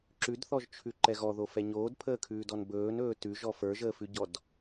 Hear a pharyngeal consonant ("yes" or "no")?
no